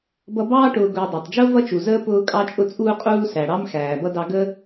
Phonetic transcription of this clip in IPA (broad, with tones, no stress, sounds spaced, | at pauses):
b ʌ˦ b ɑː˥ ʈ ʊː˨ ɡ ʊː˨ dˤ ɑ˩ tˤ d͡ʒ ʊː˥ v ʌ˦ t͡ʃ u˩ z əː˦ p ʊː˦ kʼ ɑ˦ t͡ʃʼ ʊ˦ t͡sʼ uː˦ qʼ uː˦ s æ˩ ɽ ɑ˥ m x æː˩ b ʌ˥ d ɑ˦ ɡ ə˥